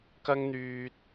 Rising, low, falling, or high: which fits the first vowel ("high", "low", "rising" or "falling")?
high